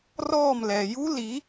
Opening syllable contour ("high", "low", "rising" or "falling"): falling